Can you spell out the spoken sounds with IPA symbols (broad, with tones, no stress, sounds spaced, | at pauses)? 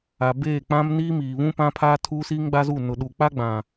a˨ b eː˦˨ k͡p ã˦ m n iː˦ m iː˨ β ũ˦ p ã˦ pʰ aː˦ tʰ uː˦ s iː˦ ŋ ɡ͡b a˦ z u˦˨ n ʊ˨ ɗ u˨ k͡p a˦ ɡ͡b ã˨